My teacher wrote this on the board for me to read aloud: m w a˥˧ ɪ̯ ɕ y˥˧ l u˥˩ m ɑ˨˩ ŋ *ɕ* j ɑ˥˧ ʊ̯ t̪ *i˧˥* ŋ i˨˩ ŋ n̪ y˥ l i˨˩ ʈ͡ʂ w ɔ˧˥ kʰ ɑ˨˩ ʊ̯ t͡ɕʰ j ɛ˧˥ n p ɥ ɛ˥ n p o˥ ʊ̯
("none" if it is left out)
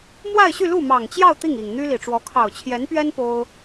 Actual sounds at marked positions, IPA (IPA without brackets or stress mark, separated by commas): t͡ɕ, i˥˩